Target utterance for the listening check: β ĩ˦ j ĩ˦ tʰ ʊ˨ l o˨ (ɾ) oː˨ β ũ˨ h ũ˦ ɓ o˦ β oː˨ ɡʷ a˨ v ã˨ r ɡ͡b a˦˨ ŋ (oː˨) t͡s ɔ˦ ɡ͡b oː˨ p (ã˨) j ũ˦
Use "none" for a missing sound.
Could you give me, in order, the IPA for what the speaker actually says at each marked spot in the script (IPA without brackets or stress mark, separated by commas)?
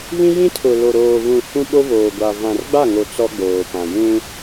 ɾ, o˨, ã˨